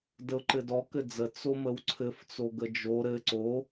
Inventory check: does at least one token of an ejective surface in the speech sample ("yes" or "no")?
no